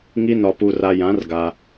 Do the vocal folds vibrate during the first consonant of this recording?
yes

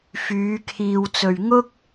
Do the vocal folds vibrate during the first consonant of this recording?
no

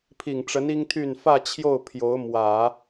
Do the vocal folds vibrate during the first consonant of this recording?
no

